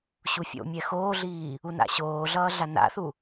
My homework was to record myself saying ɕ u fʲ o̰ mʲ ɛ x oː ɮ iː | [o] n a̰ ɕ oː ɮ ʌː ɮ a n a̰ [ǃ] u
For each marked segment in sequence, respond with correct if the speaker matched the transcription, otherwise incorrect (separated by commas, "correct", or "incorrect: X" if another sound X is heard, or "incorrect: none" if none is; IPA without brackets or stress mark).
incorrect: u, incorrect: θ